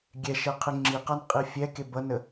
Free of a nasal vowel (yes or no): yes